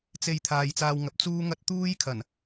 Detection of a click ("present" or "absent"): absent